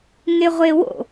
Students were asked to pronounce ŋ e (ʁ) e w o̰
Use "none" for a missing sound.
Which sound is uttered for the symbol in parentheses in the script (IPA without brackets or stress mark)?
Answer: ʁʷ